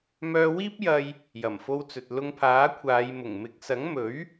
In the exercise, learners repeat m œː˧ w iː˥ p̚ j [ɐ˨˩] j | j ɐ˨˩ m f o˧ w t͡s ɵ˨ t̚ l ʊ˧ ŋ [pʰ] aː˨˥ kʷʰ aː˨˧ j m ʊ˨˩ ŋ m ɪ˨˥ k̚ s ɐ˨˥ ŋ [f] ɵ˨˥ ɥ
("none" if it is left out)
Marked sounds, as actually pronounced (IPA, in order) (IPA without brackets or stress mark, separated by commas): ɐ˧, pʰ, m